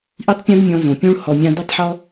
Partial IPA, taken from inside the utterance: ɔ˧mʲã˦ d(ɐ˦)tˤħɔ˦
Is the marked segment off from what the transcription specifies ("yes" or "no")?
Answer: no